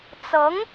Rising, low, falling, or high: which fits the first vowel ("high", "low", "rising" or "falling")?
rising